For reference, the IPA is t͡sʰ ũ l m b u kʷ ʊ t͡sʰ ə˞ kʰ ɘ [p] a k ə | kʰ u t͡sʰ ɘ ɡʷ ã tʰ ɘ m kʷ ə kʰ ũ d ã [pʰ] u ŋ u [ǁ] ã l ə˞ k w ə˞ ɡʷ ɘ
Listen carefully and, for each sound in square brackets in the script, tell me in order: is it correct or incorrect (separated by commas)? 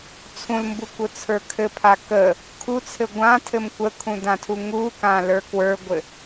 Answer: incorrect, incorrect, incorrect